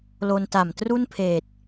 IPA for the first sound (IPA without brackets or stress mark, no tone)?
l